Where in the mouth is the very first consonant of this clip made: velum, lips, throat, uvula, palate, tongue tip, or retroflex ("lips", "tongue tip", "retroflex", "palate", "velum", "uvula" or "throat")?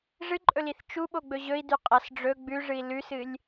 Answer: retroflex